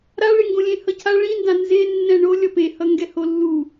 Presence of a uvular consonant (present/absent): absent